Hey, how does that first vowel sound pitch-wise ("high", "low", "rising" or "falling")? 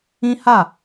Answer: high